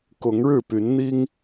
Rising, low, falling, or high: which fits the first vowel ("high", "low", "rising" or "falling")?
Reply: rising